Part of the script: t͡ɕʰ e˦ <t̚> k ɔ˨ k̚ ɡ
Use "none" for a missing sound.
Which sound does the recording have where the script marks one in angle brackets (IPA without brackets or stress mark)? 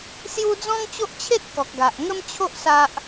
t̚